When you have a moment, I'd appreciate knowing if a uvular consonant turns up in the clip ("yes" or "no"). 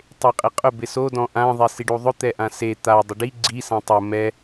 yes